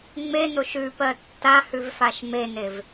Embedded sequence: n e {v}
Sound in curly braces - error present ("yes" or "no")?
no